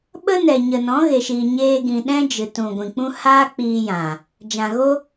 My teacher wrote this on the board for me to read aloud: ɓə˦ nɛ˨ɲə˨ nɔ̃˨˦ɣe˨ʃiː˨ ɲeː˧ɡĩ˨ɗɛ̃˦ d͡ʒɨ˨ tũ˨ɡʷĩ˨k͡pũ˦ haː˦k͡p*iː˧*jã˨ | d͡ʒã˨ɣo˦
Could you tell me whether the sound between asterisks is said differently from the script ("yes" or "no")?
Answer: no